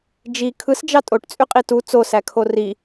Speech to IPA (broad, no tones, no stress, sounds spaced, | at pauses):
d͡ʒ i kʰ ɯ s d͡ʒ ɑ tʼ o ʈ t͡sʼ y qʼ i t u t͡s o s æ kʰ o r i